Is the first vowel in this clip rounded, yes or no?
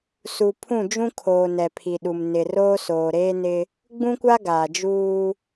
yes